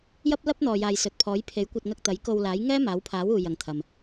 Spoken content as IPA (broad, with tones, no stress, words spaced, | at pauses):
jɐ˥p̚lɐ˥p̚n̪ɔː˨jaː˨j sɵ˨t̚ pʰɔː˨˥jpʰe˨˥jkʷɐ˧t̚ŋɐ˧k̚ t̪ɐ˨˥jko˧wlaː˨˥j ŋɛː˥maː˨˥wpʰaː˨˥wuː˨ jɐ˨ŋt̪ʰɐ˨m